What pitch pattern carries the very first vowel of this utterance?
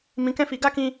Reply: rising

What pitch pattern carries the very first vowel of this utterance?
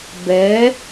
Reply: rising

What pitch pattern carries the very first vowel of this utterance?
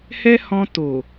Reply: high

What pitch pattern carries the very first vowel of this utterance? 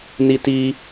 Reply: high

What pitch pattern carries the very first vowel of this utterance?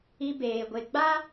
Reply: high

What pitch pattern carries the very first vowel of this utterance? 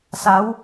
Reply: rising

